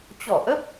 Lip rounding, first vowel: rounded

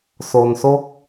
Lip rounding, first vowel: rounded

